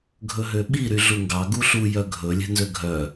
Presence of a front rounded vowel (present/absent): present